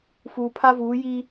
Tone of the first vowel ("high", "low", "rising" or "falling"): low